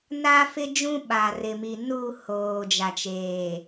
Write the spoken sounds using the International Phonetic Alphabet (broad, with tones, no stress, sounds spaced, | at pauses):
n a˦ f ɪ˦ d͡ʒ ũ˦ ɓ a˨ r ɪ˨ m i˨ n u˦˨ h oː˨ d͡ʒ a˨ t͡ʃ eː˨